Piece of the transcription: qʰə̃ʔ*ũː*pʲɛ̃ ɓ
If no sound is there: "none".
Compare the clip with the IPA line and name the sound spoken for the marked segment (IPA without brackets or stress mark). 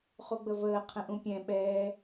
ũ